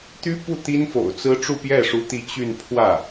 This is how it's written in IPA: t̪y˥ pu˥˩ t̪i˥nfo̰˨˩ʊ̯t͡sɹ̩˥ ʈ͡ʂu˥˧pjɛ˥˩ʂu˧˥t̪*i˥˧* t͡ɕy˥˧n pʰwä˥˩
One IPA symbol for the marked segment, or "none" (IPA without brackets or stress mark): i˧˥